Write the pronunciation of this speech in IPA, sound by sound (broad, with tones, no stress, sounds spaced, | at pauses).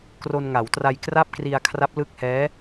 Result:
k r o˧ n ŋ a˩˦ w t r a˧ j k r a˥˩ p̚ k r i˧ a̯ kʰ r a˦˥ p̚ l ɯ˦˥ k̚ h ɛː˦˥